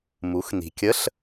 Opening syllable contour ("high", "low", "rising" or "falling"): rising